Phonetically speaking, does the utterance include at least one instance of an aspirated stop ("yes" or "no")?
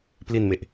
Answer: no